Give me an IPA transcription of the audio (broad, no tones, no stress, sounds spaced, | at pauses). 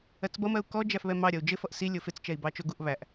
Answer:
ɜ t͡s b ʌ m ɜ u̯ k ɔ d͡ʒ æ f β ɛ m ɑ ɾʲ ʌ u̯ d͡ʒ ɪ f ʌ ʔ s i lʲ ʊ f ɪ t͡s t͡ʃ ɛ i̯ b ɑ t͡ʃ ʊ ɡ u ʔ β æ ʔ